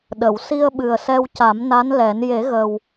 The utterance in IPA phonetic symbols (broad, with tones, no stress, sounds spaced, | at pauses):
ɗ ə˨˩˨ w s i˧ ə̯ ɓ ɨ˨˩ ə̯ s ɛ˧ w c a˨˩˦ m n a˧˥ n l ɛ˨˩˦ n j e˨˩˦ ɣ ə˨˩ w